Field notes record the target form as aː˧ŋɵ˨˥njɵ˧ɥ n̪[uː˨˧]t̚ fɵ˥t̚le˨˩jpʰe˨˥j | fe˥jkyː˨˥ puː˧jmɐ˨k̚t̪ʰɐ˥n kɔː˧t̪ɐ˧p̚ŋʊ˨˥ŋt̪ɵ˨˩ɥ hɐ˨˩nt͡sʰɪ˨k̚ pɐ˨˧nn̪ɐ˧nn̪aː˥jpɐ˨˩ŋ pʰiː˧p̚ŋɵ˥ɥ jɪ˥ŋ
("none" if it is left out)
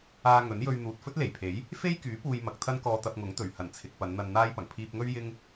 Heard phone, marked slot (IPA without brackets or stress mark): uː˨